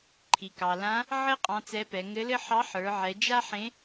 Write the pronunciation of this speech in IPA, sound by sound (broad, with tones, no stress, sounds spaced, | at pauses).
ǃʰ i˩ k ɑ˩ l ã˧˥ | ʕ ɘ˥ qʼ ɑ̃˧˥ t͡s ɛ˧˥ p ɛ˩˧ ŋ ɘ˧˥ l ɘ˥ ħ ɑ˧˥ ħ ə˞˩˧ ʕ ɛ˩˧ d͡ʒ a˥ ħ ẽ˧˥